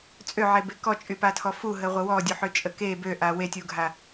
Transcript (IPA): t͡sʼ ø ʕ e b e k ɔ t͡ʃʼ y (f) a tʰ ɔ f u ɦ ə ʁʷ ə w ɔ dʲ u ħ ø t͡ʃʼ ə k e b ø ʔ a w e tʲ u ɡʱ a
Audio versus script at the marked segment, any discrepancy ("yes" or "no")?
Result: yes